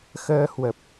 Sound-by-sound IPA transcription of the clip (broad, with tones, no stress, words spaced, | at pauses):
xəː˧hwə˨˩p̚